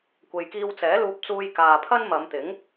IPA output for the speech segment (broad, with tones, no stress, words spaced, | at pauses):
kʷe˨jkiː˧w t͡sɛː˨˥luː˧p̚t͡suː˧j kaː˨pʰɐ˥n mɐ˨˧mt̪ɪ˨˥ŋ